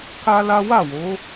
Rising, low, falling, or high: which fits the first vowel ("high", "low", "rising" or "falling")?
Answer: high